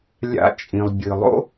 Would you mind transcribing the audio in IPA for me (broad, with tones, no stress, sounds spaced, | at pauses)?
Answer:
lʲ a̰˧˥ t͡ʃʼ ĩ˩ lˠ bʲ ɨ˩ lˠ o̰˥